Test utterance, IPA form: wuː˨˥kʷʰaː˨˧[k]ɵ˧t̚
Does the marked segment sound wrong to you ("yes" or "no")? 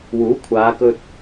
no